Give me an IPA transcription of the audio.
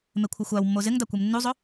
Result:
m e kʷʰ ɪ xʷ a w mː o z ɪ ŋ d a kʷ e m nː u zˤ o

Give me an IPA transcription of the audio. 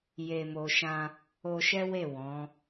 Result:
j e˨ m o˨ ʃ ã˧ | o˧ ʃ ɛ˦ w e˦˨ w ɔ̃˨˦

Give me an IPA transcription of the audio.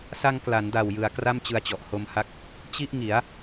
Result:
s a˧ ŋ k l a˩˦ n d a˨˩ w j ɯ˩˦ a̯ k r a˥˩ m t͡ɕ ɯ˧ a̯ t͡ɕ ɔ˨˩ ʔ h o˧ m h a˦˥ k̚ | t͡ɕ i˥˩ ʔ ŋ i˩˦ a̯

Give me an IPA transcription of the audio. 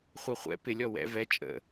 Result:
χʷ ɜ χʷ ɛ̰ p ɪ lʲ ɔ w ɛ̰ v ɛ t͡ʃʼ ə̰

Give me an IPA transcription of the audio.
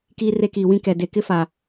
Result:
k iː˦ r e˦ k iː˨ w ĩ˦ k ɛ˨ d e˨ k ɪ˦ f a˨

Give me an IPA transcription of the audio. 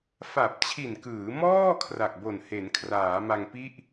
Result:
f a˨˩ p̚ t͡ɕʰ i˨˩ n k ɯː˩˦ m ɔː˥˩ kʰ r a˨˩ k̚ b o˨˩ n h e˩˦ n kʰ r aː˩˦ m a˧ ŋ p i˥˩ ʔ

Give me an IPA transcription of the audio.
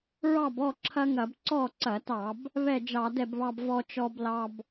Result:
ɹ ɑ˥˨ b ɔ˥˨ ǁʰ ɐ˦ ŋ ɐ˧˩˧ b ǀ ɔ˥˨ ǀ ɐ˧˩˧ t ɑ˧˩˧ b | β ɛ˥˨ d͡ʒ ɑ˧˩˧ d ɛ˥˨ b β ɑ˦ b v ɔ˦ t͡ʃ ɔ˦ b l ɑ˦ b

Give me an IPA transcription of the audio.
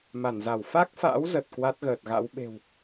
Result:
m a˧˩ n z a˧˩ w f a˦˥ k̚ f a̰ː˧˥ w z ə˨˩ t̚ k w a˦˥ t̚ ɣ əː˨˩ t̚ ɣ a̰˧˥ w ɓ e̤˨˩ w

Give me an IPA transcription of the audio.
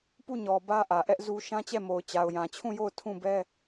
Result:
p u˦˨ ɲ ɔ˨ b ä˦ ʔ ä˨ ʔ ɛ˦ ʔ z u˦ ʃ ã˦ t͡ɕ ɛ˦˨ m o˨ ʊ̯ t͡ɕ a˨ ʊ̯ j ã˨ t͡ɕʰ ũ˦˨ j o˦˨ ʊ̯ tʰ ũ˦˨ b ɛ˦

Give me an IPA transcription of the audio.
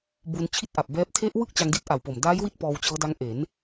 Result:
b u˧ n t͡ɕʰ i˥˩ t̚ ʔ a˨˩ p̚ b ɛː˦˥ p̚ tʰ e˦˥ ʔ w ɯ˥˩ k̚ t͡ɕ a˧ ŋ d i˦˥ t̚ ʔ a˨˩ w p o˨˩ m d aː˦˥ j w i˦˥ t̚ p ɔː˧ w t͡ɕ ɤː˦˥ d a˦˥ ŋ ʔ e˩˦ n

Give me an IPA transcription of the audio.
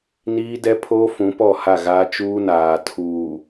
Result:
n iː˦ d ɛ˦ pʰ oː˦ f ũ˨˦ p ɔ˦˨ h a˦˨ ɣ aː˦ t͡ʃ uː˦ n aː˨ tʰ uː˨

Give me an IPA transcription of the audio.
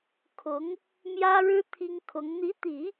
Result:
kʰ ʊ˧˥ ŋ | m j ä˥ ɻ ɻ̩˥ t̪ʰ i˥ ŋ kʰ ʊ˧˥ ŋ n̪ i˧˥ t̪ i˨˩˦

